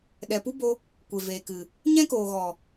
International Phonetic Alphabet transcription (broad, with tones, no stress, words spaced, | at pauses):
ɗɛ˨pu˦bo˧ | kʷe˨veː˨kɨ˨ | ɲɛ̃˦koː˨ɣɔ˨